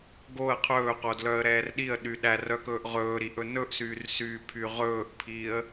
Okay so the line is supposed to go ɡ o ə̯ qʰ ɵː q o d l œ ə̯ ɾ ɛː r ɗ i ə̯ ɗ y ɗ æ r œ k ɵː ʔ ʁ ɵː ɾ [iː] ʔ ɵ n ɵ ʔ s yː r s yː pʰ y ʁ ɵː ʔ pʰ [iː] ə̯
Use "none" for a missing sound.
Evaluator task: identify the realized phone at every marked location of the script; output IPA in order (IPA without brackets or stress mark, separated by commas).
i, iː